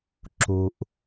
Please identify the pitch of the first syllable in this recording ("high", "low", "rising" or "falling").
low